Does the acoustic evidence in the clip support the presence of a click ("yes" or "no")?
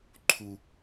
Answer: yes